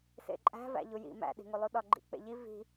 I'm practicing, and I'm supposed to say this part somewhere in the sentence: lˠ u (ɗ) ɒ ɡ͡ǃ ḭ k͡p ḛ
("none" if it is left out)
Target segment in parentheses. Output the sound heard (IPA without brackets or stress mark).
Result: ɗ